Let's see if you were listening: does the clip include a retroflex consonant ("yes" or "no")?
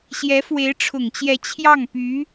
yes